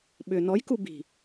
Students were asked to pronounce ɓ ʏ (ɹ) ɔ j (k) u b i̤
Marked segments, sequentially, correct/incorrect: incorrect, correct

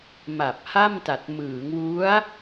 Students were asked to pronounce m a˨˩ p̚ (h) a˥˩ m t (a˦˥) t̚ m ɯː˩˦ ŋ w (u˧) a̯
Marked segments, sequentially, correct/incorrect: correct, incorrect, incorrect

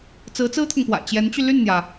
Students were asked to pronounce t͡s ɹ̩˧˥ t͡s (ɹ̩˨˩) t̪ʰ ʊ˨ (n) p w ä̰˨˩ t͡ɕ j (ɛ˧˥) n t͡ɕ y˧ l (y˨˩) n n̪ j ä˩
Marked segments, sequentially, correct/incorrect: incorrect, incorrect, correct, incorrect

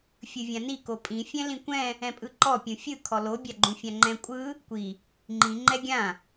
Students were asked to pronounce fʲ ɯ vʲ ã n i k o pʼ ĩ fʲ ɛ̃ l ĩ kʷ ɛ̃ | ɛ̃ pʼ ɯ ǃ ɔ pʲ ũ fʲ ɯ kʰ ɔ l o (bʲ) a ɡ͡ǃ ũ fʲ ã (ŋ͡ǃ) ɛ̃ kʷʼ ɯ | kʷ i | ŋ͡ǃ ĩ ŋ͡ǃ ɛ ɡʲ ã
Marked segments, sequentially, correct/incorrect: correct, correct

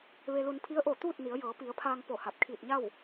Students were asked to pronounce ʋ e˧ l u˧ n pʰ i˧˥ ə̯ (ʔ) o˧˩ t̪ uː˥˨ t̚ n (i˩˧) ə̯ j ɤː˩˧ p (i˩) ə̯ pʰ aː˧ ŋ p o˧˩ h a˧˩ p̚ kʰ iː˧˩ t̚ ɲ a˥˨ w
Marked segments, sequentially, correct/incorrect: correct, correct, incorrect

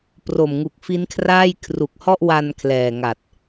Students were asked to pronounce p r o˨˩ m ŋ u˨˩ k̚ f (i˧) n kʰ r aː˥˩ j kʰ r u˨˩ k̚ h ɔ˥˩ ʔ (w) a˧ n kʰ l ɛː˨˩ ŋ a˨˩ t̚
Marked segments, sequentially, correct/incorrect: incorrect, correct

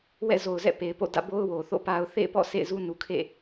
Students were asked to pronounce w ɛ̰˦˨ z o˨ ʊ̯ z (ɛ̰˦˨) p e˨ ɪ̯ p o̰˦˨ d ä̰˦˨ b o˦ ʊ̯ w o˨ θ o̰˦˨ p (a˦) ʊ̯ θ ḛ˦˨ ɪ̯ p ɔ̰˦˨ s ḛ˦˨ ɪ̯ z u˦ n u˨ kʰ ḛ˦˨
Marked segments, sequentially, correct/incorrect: correct, correct

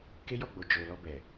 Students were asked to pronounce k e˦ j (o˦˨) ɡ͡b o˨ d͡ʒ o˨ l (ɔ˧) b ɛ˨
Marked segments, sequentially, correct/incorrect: incorrect, correct

